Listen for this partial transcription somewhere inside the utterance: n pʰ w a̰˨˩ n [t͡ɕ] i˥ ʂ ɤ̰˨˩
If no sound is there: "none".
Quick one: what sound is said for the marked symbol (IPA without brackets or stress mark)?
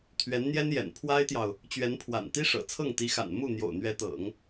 t̪